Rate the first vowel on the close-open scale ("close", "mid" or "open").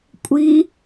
close